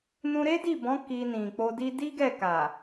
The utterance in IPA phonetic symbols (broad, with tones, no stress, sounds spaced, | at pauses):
n ũ˧ ɾ e˦ d i˦˨ b ɔ̃˨˦ k i˧ n ĩ˨ k͡p o˧ d i˦ d i˦ ɡ ɛ˦˨ k a˨